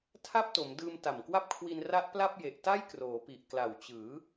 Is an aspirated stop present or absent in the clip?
present